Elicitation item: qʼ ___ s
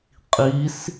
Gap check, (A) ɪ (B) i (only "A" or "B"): B